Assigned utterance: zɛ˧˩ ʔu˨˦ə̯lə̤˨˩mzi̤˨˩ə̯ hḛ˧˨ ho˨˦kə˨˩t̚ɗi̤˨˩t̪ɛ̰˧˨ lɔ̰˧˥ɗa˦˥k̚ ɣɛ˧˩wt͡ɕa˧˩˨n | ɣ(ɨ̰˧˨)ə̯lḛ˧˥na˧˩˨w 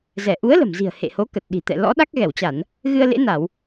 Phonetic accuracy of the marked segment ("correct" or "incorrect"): incorrect